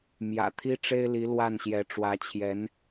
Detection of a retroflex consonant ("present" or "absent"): present